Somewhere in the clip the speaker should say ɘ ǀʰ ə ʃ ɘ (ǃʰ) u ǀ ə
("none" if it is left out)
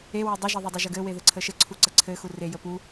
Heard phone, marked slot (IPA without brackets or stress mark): ǀʰ